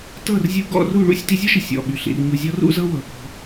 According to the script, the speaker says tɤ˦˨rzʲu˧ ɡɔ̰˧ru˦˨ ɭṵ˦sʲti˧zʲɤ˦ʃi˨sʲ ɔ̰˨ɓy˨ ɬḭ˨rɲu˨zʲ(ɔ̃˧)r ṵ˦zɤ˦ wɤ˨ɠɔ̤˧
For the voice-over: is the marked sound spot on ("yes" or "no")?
no